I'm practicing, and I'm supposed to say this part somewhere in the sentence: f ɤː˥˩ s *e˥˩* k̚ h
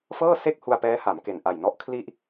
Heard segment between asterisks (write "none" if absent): e˥˩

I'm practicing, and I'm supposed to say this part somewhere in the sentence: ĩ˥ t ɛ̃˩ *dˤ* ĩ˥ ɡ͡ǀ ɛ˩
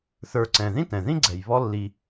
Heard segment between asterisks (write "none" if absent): ð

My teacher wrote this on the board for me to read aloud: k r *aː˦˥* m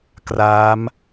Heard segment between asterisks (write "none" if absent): aː˦˥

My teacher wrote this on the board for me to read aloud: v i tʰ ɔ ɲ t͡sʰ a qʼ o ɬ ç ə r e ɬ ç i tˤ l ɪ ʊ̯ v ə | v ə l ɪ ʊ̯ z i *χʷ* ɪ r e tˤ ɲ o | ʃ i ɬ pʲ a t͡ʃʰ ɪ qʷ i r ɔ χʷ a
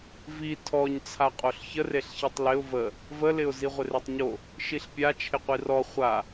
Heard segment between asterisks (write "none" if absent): ʁʷ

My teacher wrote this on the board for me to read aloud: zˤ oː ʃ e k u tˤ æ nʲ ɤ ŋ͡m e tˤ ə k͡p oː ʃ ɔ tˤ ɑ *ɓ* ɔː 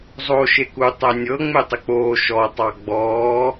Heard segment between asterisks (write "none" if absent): ɡ͡b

